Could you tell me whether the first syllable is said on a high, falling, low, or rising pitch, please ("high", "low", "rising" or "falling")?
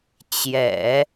low